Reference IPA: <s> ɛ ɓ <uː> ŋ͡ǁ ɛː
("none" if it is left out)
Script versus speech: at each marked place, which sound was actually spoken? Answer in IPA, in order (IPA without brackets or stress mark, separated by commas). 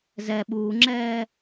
z, uː